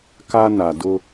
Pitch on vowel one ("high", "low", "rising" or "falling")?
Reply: high